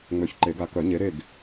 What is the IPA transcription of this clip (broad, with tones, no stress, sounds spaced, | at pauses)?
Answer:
ŋ͡m ø˨˩˦ ç ǃ e˨˩˦ ɡ a˨˦ k œ˨˩˦ ɲ e˨˦ ɾ e˦˨ ɡ